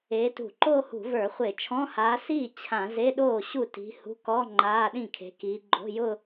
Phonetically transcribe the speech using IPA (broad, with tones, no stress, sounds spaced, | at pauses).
e˨˦ t ṳ˧˩˧ ǃ oː˥˧ h ṳ˧˩˧ v ə˞˧˩˧ χʷ e˧˩˧ t͡ʃʰ ɔ̃˧˥˧ h aː˨˦ s iː˥˩ t͡ɕʰ ã˧˩˧ z e˧˥˧ ɗ oː˥˩ ɕ u˥˩ t i̤˨˦ h ṳ˧˥˧ k ɔ˧˥˧ ŋ͡ǃ aː˧˥˧ ɗ ĩ˥˩ kʰ e̤˨˦ k iː˨˦ ɡ͡ǃ o̤˧˥˧ j ʊ˥˧